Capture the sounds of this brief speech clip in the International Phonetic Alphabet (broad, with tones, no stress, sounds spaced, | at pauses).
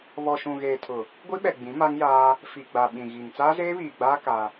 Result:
β ɔ˨ ʃ ũ˨ ɣ eː˨ tʰ ʊ˨ | ɡʷ i˦ ɓ ɛ˨ ɡ͡b ĩ˨˦ m a˦ ŋ j aː˦ | f i˨ ɡ͡b a˨ ɓ ĩ˨ ɣ i˨ ŋ t͡s aː˦ z eː˦ β iː˨ ɡ͡b aː˦ k a˦